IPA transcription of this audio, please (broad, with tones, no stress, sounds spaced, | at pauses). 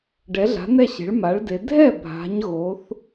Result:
ɖ ɛ˩˥ ɮ a̤˩˥ n ɛ˥˩ ɕ e̤˩˥ ɭ m a˩˥ ɭ d e˩˧ dʱ ɛ˥˩ bʱ a̤˩˧ ɲ ɣ o˩˥ θ